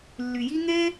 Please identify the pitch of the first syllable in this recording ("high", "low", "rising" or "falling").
low